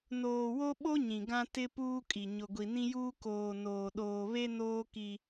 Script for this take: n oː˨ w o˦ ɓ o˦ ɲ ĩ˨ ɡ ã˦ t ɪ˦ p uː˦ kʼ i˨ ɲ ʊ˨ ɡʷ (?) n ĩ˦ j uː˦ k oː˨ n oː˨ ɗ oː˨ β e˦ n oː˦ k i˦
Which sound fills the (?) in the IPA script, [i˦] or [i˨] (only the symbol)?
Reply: i˨